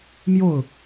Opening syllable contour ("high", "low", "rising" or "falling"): falling